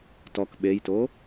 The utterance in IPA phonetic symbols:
tɔk ɓejto

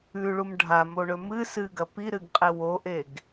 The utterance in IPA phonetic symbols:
ʉɭum ɖʱamoɳɵ mɨ sɨɡɐ piɾɨɡqʼe woʔeɡ

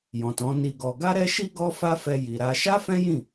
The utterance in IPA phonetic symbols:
jɔ̃˨tɔ̃˨˦ ni˧ɡɔ˧ ɡa˦ɾɛ˦ʃi˦ ɡɔ˦fa˦fɛ˧ ji˨ɾa˧ ʃa˦fɛ̃˦jĩ˦˨

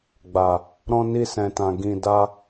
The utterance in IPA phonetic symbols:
ɡ͡ba˨ | ɾɔ̃˧ni˧sɛ̃˨tã˨ ɡĩ˧ da˧

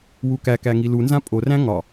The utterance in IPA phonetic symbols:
wukækæ ŋilunzã pʼoræ̃ ŋɒ

